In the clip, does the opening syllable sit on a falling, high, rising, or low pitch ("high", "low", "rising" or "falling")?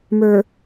low